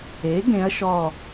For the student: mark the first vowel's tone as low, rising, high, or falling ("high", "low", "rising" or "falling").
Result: rising